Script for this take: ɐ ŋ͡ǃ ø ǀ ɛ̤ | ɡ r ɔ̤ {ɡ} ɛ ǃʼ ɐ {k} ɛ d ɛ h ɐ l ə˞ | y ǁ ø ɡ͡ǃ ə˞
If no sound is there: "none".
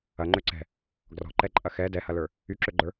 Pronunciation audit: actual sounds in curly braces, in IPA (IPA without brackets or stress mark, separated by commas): ǃ, x